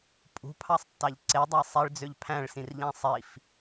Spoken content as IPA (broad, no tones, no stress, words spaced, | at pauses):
pʼṳpʰɑsˤtːɑʎ ǀedˤɑ sˤiɭd͡zøʎ pʰæ̃ɭsĩrʎæ̃ sˤif